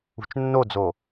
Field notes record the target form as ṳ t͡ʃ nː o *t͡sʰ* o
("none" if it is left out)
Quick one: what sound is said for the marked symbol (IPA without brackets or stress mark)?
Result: d͡z